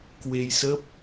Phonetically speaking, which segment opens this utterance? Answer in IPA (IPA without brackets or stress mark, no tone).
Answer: k